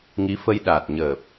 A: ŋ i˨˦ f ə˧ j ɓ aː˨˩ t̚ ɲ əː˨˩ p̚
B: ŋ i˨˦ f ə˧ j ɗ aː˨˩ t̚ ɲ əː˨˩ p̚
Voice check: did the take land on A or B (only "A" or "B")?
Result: B